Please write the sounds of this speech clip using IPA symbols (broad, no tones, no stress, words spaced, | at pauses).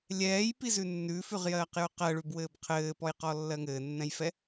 lʲɛːjpizʉ nːʉfʉʁjɜːqjʉ qɜɭʉbwɘːb qʰɘːpɔjqɔlːɜ ŋɘːnːɛ̃jfɛ